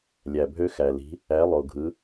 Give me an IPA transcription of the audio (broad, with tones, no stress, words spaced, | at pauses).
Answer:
lʲæ˩bʱø˧ xæ˩li̤˩˧ | æ˩˧lˠo˩ ɡʱɯ˩˧